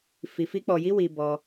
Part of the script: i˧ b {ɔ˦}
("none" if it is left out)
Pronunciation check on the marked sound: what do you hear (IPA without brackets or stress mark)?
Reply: ɔ˦